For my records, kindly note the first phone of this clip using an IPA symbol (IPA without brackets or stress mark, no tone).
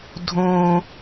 dʱ